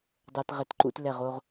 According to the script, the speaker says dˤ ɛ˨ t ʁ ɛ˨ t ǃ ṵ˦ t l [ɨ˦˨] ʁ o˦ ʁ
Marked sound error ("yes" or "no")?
yes